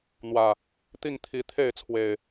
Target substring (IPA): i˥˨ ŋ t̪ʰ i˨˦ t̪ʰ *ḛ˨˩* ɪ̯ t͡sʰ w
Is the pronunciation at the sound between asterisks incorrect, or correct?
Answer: incorrect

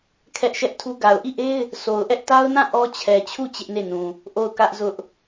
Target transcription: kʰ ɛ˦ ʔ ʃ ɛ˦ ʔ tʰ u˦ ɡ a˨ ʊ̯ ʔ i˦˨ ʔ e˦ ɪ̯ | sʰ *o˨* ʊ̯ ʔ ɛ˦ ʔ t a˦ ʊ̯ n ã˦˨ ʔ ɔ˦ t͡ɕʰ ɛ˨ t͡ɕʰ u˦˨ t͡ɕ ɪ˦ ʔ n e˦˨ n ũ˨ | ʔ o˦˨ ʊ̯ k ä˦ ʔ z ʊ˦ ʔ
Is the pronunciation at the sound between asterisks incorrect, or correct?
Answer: correct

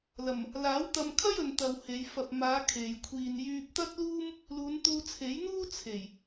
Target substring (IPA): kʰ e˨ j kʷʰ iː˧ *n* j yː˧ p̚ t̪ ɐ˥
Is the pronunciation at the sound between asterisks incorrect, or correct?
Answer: correct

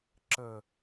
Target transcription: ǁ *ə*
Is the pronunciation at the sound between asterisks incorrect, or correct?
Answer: correct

